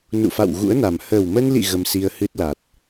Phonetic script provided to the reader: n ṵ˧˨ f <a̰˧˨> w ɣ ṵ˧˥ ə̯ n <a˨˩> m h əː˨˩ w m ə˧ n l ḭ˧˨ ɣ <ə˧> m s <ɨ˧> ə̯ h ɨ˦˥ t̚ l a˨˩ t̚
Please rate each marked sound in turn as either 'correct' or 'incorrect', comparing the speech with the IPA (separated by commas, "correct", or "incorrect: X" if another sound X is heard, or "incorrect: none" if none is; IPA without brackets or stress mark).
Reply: correct, correct, correct, incorrect: i˧